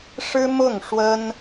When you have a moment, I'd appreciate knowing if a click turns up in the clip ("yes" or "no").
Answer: no